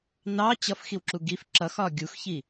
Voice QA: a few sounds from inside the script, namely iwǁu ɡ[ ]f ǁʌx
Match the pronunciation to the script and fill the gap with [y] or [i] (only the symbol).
i